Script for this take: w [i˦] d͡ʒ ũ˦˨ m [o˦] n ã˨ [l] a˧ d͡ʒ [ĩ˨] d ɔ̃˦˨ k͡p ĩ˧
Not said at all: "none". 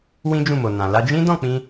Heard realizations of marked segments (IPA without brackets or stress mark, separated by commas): ĩ˦, o˨, l, ĩ˦